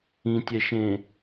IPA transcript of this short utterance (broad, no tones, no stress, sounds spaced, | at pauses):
ĩ tʲ ɛ ʃ ẽ